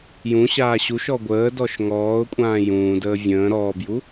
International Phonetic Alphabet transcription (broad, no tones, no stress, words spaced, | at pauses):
jũɕaː ɕuʃɔ ɡʷəːdɔʃ ŋɔːʊ̯kʷʼãː jũːdəː vʲə̃ː ɾɔːbju